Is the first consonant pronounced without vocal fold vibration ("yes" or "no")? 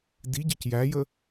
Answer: no